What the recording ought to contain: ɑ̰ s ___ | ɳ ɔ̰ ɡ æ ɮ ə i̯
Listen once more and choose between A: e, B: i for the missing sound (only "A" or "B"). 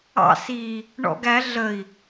B